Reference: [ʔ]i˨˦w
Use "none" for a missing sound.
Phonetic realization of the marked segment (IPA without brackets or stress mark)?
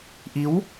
ʔ